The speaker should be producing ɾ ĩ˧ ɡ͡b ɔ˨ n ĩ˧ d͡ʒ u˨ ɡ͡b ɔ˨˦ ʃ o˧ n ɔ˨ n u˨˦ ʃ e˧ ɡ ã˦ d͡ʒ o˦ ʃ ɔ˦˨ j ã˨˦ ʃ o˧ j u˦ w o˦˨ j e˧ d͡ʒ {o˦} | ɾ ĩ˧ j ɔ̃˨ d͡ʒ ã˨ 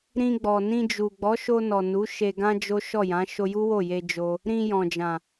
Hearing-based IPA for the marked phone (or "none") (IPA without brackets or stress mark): o˧